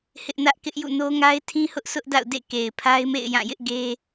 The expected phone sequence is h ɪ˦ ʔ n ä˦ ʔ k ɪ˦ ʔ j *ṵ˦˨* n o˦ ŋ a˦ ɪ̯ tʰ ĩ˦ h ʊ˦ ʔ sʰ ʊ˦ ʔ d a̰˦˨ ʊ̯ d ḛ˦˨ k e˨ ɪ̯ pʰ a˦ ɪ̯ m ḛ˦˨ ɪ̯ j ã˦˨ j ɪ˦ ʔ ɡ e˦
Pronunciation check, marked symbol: correct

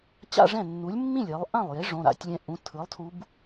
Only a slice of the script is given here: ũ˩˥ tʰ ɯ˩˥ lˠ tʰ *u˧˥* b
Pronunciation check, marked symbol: correct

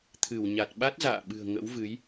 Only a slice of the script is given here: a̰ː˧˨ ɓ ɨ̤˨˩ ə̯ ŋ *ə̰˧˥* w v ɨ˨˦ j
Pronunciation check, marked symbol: correct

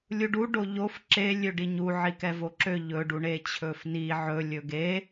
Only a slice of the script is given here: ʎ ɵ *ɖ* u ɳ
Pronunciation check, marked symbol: correct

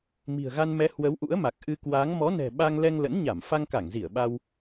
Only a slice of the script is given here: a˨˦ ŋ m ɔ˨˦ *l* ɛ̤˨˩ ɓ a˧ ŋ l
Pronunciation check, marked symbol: incorrect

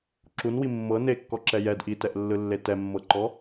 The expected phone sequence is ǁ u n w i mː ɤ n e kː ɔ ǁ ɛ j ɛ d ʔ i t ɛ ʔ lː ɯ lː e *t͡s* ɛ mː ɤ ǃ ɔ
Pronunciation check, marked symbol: incorrect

